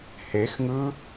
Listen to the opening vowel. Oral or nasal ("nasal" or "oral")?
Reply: oral